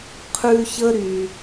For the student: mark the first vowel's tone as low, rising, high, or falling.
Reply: high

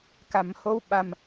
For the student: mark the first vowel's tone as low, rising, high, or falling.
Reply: low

